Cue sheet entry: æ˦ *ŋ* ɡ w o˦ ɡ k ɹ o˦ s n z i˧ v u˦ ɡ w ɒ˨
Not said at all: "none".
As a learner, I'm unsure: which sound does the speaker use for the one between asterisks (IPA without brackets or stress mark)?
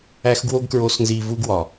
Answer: x